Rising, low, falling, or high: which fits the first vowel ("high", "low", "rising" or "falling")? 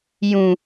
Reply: low